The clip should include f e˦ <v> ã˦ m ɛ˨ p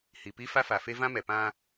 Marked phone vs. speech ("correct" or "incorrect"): correct